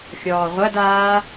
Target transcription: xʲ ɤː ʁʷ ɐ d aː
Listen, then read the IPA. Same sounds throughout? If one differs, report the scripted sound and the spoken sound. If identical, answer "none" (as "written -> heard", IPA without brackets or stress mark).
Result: ɤː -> ɔː